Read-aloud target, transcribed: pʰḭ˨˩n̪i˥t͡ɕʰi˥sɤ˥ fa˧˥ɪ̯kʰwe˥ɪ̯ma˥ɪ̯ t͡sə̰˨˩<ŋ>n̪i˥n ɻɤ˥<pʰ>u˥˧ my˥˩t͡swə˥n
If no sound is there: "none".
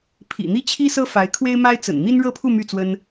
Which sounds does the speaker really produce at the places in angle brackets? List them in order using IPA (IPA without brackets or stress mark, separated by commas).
n, pʰ